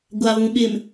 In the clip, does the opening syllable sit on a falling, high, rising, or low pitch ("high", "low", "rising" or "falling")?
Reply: low